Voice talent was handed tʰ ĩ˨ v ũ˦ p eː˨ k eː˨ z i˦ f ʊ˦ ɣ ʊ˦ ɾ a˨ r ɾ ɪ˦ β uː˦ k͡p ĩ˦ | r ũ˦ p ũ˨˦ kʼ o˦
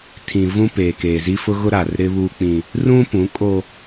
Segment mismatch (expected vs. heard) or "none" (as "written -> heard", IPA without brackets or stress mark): none